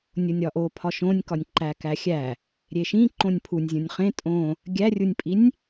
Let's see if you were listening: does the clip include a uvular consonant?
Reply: yes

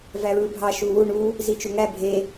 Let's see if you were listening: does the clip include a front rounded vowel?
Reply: no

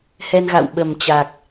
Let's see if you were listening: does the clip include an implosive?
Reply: yes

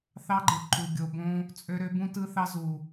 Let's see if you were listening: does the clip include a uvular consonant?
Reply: no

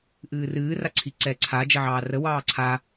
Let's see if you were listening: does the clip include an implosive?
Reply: no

